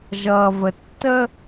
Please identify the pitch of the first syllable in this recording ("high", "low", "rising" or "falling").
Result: low